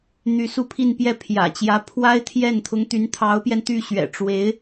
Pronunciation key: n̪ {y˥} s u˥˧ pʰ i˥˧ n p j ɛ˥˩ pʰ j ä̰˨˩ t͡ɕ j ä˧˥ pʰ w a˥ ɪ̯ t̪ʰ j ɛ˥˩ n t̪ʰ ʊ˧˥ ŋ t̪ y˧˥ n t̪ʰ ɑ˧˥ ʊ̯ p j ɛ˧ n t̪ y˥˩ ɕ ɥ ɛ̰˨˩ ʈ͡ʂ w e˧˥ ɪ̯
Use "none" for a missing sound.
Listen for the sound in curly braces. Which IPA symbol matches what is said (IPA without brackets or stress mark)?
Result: y˧˥